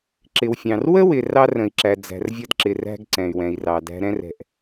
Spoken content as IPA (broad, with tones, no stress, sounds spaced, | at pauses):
ǁ ɪ˩ w fʲ ɑ̃˩ r w ə˥ w ɪ˩ r ɑ˥ r ə̃˩ i̯ ǁ æ˩ d͡z æ̤˩ r vʲ ʌ˥ d ǁ ɪ˩ r æ̤˥ ɡ ǀ ɛ̃˩ y̯ w ɛ̃˩ i̯ r ɑ˩ d æ̤˥ ɾ ɛ̃˥ r ɛ̤˩ ʔ